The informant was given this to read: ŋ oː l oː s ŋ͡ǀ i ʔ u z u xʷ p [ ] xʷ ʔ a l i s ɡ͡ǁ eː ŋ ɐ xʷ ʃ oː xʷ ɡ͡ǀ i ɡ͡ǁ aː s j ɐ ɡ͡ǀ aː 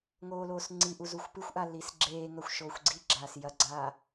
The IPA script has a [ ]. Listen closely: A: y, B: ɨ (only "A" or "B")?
B